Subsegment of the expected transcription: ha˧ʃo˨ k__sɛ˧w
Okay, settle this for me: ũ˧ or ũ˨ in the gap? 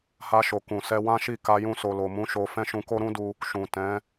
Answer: ũ˨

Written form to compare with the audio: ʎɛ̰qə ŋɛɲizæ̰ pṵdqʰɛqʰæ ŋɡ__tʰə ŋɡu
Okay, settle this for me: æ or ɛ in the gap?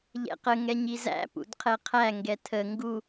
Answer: ɛ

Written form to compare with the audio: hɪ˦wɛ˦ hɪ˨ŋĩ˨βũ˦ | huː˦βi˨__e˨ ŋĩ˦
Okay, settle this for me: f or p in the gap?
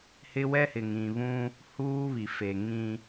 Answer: f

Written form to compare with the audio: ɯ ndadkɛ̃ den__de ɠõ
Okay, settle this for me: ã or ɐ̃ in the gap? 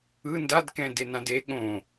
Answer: ã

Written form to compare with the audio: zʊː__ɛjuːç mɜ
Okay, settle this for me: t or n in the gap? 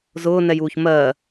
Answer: n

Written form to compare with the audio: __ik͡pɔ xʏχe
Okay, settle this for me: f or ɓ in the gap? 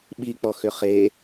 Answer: ɓ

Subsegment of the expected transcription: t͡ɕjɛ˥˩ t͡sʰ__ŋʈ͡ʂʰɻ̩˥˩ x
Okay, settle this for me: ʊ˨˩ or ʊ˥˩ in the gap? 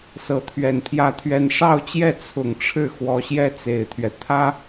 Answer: ʊ˨˩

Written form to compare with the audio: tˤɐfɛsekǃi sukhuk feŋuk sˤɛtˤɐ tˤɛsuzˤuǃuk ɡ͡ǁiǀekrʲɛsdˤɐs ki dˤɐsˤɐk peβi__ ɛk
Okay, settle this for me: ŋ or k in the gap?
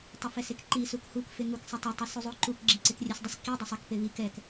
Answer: k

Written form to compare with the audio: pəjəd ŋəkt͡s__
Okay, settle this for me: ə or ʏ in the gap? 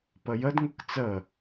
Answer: ə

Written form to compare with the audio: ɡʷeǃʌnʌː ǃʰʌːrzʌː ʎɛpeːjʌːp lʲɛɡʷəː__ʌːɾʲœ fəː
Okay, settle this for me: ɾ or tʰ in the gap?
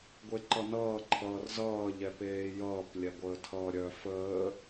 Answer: tʰ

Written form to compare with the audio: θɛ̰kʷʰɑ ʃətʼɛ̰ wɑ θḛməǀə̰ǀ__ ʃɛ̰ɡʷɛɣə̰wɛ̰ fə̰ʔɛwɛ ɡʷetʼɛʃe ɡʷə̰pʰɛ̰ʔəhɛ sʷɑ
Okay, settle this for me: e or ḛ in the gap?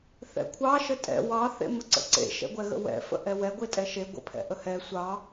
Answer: ḛ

